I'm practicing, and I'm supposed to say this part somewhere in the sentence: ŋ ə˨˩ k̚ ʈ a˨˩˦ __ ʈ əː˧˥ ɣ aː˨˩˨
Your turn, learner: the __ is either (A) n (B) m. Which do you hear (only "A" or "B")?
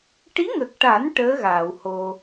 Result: A